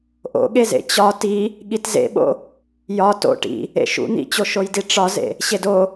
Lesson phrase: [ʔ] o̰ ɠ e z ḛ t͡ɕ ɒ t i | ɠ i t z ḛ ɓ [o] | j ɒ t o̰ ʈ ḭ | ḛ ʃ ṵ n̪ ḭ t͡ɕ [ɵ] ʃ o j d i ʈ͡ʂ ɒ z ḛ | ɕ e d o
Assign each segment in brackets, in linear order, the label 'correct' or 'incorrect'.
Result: correct, incorrect, incorrect

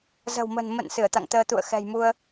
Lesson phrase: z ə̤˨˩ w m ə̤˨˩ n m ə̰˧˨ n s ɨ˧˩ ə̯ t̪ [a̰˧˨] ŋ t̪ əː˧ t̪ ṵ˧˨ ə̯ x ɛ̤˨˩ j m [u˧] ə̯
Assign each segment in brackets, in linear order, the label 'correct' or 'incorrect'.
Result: correct, correct

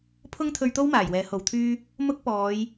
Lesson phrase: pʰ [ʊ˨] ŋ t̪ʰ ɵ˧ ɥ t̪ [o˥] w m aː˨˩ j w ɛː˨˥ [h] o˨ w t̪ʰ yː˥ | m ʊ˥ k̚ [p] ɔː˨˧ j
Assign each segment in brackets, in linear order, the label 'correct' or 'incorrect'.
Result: incorrect, correct, correct, correct

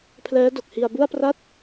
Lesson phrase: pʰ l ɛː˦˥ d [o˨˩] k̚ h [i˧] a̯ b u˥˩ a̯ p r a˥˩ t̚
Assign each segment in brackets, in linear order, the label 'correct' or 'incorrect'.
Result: correct, correct

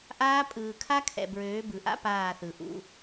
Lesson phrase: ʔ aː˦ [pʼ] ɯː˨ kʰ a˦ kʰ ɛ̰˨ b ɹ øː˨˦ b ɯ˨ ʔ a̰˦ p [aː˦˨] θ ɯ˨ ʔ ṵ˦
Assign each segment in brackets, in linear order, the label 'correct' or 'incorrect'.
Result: correct, correct

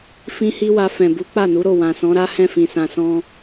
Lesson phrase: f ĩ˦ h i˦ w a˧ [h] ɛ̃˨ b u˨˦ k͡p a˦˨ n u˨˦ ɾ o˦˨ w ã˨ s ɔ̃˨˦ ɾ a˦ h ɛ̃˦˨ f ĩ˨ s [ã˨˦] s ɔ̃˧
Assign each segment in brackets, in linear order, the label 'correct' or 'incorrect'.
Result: incorrect, incorrect

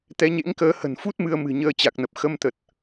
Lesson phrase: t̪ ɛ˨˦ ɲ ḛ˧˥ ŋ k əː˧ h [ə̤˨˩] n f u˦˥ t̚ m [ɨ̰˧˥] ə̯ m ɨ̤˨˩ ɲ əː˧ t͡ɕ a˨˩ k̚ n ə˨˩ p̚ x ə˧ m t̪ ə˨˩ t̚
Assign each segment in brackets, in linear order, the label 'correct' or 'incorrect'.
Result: correct, incorrect

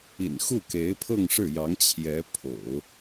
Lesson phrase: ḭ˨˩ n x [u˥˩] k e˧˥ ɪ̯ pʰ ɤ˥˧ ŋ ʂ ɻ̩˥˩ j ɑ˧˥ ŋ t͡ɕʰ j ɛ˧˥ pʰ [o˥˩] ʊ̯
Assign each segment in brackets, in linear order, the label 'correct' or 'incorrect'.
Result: correct, incorrect

